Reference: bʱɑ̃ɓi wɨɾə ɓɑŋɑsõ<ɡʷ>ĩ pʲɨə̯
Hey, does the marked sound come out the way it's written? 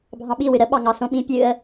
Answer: no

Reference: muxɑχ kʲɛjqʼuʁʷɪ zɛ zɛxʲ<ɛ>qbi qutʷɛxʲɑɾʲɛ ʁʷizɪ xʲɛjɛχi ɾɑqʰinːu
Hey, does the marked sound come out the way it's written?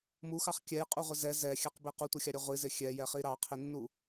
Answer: yes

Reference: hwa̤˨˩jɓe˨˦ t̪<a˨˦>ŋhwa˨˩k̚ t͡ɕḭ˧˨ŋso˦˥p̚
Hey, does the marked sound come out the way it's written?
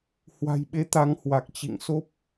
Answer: yes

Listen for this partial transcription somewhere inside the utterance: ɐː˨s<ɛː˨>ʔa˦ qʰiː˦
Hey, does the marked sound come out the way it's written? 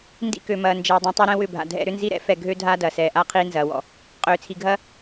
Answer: yes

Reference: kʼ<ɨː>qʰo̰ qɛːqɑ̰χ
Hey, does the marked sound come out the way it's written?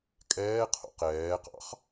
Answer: no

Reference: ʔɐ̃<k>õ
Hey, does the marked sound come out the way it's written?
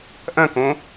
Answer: yes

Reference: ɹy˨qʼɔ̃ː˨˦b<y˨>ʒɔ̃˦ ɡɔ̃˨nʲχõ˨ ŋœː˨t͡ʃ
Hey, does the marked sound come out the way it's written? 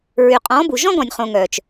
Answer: no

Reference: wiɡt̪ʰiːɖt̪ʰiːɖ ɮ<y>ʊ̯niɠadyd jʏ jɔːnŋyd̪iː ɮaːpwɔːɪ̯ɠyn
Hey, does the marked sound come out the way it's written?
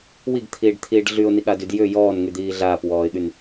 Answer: yes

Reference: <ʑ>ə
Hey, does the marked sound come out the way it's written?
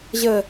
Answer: yes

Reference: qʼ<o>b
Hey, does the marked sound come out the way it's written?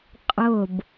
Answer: no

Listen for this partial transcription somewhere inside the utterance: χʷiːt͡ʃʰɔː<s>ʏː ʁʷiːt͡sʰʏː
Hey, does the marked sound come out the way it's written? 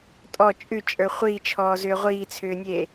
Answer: no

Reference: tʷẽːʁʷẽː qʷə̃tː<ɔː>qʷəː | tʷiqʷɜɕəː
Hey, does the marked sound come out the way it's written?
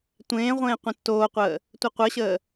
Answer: no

